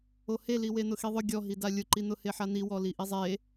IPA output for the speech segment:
o h e l i w e n̪ ʊ x i ðˤ ʊ ɡʲ ɔ ɦ i d a lʲ ʊ ǃ i n̪ ʊ h e ħ a n̪ i w ɔ l i ʔ i zˤ e

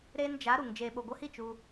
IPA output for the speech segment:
ɾ eː˧ n d͡ʒ a˨˦ ɾ u˨ ŋ d͡ʒ eː˨ ɓ o˨ ɡʷ ə˧ h i˦˨ t͡ʃ u˧

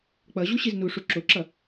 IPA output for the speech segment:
k͡p ʌ ʑ u ɕ i z n u ʂ u ǁ o ǁ ʌ

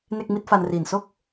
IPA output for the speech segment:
n e˥˩ k̚ m i˥˩ t̚ f a˧ n r iː˨˩ n s o˥˩ k̚

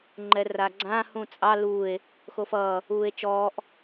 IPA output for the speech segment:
ŋ͡ǃ ɛ r a ɡ͡ǀ ã h ũ t͡sʼ ɑ l uː e̯ | x o f ʌː | uː e̯ t͡ʃ ɔː ʔ

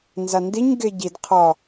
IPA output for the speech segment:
n z a n d i ɲ ɡ e ɟ i d qʰ ɒ

